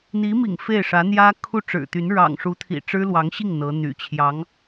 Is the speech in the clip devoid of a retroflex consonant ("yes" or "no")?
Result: no